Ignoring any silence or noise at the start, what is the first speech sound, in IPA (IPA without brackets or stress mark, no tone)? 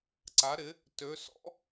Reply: ǀ